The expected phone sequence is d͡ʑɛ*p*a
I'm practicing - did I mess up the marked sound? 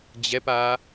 no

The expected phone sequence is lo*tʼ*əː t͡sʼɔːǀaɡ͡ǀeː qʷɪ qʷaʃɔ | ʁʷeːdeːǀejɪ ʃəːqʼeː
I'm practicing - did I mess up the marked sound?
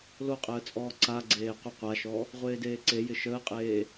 yes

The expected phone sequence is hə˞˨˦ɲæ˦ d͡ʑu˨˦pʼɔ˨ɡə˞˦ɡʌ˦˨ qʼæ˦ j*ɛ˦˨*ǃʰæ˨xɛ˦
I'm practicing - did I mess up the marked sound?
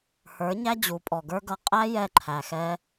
no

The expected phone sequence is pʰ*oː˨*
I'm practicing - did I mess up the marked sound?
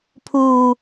yes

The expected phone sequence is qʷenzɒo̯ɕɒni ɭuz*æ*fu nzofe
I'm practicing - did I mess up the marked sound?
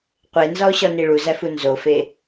no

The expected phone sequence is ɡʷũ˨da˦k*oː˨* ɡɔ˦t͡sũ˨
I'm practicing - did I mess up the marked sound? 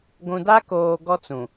no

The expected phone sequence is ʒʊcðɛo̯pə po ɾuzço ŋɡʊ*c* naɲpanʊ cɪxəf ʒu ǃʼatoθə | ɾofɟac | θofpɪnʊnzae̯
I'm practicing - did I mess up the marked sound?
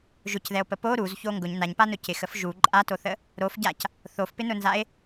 yes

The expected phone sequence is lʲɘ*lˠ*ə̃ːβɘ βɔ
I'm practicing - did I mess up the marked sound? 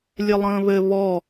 no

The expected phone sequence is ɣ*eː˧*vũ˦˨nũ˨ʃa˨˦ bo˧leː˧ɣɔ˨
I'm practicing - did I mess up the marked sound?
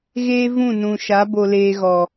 yes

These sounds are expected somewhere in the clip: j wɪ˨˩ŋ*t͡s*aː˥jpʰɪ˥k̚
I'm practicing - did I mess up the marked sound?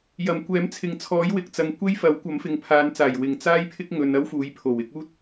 no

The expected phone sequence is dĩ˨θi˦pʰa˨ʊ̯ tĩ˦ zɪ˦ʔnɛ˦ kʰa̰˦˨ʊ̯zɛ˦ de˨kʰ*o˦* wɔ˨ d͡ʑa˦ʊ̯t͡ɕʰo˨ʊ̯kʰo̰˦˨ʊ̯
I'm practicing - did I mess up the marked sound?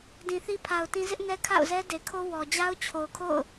no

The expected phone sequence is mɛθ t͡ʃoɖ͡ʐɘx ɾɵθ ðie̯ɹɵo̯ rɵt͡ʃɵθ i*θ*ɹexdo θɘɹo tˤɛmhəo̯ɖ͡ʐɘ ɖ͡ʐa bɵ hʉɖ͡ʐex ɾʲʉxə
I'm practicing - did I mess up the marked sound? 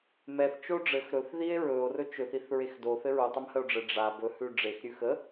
no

